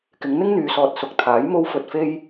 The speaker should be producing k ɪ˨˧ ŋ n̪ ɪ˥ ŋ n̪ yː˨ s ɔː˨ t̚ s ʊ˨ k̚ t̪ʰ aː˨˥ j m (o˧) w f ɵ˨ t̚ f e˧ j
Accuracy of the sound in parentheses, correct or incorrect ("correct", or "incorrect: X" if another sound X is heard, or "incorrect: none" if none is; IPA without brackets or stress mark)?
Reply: correct